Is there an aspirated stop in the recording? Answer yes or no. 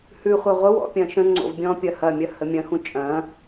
no